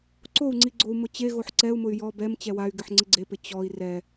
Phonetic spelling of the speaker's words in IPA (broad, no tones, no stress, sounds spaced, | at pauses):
ǀ o u̯ ŋ͡ǀ i ɡ͡ǀ o u̯ m ʊ t͡ɕ e ɣ o ħ ǀ ɛ u̯ m ʊ y̯ j ɔ b ɛ m t͡ɕ ɛ w a y̯ ɡ ɪ ħ ŋ͡ǀ ɪ ɡ͡ǀ e p ɪ t͡ɕ ɔ i̯ r ɛ